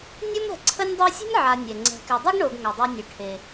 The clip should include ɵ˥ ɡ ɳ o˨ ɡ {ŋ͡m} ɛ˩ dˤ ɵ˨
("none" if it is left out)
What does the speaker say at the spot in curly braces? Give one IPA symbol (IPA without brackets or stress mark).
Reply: ŋ